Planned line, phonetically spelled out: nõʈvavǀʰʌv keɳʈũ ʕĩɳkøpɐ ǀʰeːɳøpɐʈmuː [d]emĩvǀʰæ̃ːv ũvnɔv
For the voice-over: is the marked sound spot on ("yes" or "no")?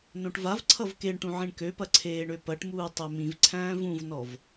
no